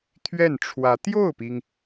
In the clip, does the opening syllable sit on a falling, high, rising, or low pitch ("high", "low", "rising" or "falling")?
falling